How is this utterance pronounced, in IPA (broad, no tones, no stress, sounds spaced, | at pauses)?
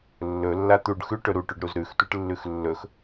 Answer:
lː ɵ lː a t̪ u ɖ x ʉ ʈ ɵ ɾ u ʈ ʉ ɖ ɾ u z ɾ ʉ x tʷ ɨ ʈ lː ʉ x lː ɵ x